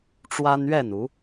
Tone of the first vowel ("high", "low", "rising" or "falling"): high